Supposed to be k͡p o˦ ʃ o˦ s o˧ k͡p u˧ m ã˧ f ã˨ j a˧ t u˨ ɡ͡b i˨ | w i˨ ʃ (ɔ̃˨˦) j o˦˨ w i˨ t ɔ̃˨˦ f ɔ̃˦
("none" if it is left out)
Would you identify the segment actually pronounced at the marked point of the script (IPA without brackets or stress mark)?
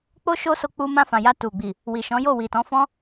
ɔ̃˨˦